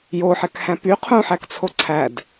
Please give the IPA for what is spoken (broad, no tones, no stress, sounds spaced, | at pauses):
j o ħ ɛ k h æ̃ p y qʰ ũ ħ æ k t͡sʰ o ǀʰ æ d